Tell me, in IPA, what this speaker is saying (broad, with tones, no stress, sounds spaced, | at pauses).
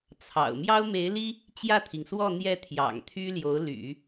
t͡sʰ ɑ̰˨˩ ʊ̯ m j ɑ˥ ʊ̯ m e˧˥ ɪ̯ l i˥ | t͡ɕ j ä˥˩ t̪ʰ i˩ ŋ s w ɔ˥˧ n̪ j ɛ˥˩ t̪ʰ j ɑ̰˨˩ ŋ t̪ʰ y˥ l j o˧˥ ʊ̯ l y̰˨˩˦